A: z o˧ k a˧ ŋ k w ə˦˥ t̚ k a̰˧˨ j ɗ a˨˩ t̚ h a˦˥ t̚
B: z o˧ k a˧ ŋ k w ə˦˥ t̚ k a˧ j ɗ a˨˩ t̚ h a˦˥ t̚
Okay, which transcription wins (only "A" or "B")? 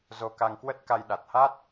B